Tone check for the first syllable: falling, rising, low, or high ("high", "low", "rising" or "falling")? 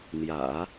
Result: low